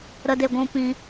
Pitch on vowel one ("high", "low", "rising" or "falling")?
high